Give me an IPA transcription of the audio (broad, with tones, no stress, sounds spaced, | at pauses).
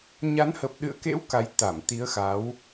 ɲ a˨˦ n h ə˨˩ p̚ ɗ ɨ̰˧˨ ə̯ k ḛ˧˥ w k a˨˦ j t̪ a˧˩ m t̪ i˨˦ ə̯ x a˨˦ w